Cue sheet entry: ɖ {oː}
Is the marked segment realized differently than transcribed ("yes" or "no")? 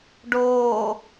no